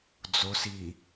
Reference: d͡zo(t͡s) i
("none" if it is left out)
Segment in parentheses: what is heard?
s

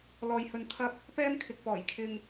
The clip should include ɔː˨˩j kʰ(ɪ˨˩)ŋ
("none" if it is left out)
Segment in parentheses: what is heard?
ɪ˧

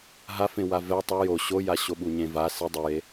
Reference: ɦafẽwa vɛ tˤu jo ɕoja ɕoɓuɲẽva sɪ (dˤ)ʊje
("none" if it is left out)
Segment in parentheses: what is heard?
dˤ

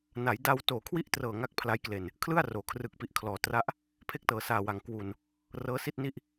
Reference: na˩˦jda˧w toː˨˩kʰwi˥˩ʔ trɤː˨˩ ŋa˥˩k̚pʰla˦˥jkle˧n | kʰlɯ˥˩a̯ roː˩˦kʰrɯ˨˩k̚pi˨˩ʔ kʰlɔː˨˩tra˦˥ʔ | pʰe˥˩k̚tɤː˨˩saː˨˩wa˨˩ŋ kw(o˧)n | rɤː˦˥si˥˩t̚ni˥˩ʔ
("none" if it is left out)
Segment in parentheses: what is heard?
u˧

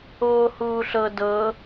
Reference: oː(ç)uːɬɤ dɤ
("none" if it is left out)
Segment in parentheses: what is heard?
h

